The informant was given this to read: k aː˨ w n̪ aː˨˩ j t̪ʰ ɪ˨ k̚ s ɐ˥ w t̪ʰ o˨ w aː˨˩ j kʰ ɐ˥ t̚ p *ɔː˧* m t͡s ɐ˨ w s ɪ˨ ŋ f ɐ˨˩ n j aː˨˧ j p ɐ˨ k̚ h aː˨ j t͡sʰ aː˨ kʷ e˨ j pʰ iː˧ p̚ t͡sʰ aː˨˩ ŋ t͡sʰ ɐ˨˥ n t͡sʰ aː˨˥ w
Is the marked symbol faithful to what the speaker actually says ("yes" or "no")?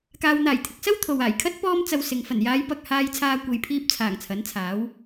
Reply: yes